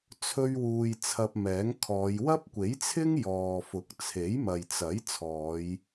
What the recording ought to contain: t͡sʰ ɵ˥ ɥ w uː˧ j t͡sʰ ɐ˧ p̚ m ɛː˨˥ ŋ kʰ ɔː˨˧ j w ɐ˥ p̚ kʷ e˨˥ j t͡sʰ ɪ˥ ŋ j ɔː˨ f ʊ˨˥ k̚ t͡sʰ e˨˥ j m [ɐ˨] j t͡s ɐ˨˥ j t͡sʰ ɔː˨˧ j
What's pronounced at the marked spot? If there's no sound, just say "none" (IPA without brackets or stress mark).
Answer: ɐ˨